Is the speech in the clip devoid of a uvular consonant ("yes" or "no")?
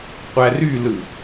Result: no